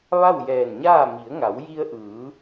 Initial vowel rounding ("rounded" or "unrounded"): unrounded